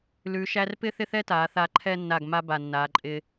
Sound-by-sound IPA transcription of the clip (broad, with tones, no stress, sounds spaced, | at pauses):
l ʉ˩˧ ʃ æ˧ r p ɪ˥˧ θ ɪ˥ θ ɛ˥ t aː˩˧ θ a˧ ǃʰ ɛ˥˧ nː a˧˩ ɡ m a˥ b a˧˩ nː aː˩˧ ǃʼ ɪː˧